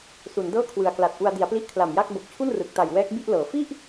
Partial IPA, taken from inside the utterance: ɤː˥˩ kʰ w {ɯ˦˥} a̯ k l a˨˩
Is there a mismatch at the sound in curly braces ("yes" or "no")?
yes